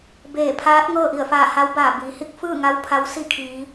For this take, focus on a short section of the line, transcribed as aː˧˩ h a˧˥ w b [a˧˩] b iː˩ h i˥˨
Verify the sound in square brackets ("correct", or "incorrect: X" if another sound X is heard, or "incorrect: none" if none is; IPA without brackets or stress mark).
incorrect: aː˧˩